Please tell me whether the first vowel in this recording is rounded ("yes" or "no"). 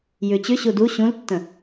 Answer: yes